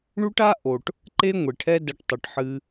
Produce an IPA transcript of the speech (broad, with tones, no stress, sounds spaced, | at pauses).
ɳ u˦ ʈ a˦ ʔ o˨ ʈ | ǃ e˦ ŋʷ e˨ ʈʰ ɛ˦ d ɐ˧ ʈ tˤ ɘ˨ ʈ ħ ɨ˧